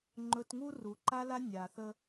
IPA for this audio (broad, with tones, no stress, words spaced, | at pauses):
ŋ͡ǃɵ˨tŋu˦ru˩ ǃa˥la˥ nʲa˩θə˦